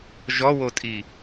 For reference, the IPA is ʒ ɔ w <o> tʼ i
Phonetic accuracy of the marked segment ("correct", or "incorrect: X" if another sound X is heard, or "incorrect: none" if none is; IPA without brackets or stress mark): correct